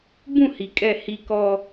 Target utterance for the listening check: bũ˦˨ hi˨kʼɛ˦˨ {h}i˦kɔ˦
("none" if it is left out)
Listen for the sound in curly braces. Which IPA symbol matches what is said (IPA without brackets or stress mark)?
h